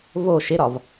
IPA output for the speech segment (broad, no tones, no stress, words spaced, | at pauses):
vo ʃɪɾɒv